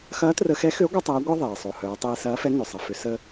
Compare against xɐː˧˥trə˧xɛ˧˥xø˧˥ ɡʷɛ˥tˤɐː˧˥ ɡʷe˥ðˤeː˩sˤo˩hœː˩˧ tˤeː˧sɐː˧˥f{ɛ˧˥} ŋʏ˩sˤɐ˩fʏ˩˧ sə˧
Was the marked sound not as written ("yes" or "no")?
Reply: no